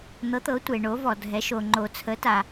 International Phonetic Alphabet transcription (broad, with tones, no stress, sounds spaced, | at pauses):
n̪ ɤ˩˧ t̪ ɤ˩˧ tʷ e˩ ɳ o˩˧ v ɔ˩ dʱ ɛ˩˧ ʃ o˩ ŋ͡ǃ o˩ t͡sʰ ə˩˧ t a˩